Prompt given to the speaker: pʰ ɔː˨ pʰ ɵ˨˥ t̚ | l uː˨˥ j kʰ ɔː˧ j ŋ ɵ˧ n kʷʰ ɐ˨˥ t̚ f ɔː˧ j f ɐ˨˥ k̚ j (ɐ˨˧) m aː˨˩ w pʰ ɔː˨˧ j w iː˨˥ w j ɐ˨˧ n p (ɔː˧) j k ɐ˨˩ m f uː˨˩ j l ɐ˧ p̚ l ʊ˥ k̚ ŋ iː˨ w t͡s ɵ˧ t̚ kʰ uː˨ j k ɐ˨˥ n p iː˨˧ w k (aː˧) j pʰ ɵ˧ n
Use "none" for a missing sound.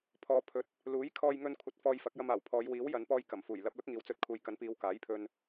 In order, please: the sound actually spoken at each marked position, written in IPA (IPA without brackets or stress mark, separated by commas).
ɐ˧, ɔː˧, aː˨˥